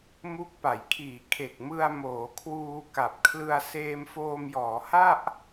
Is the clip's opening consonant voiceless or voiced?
voiced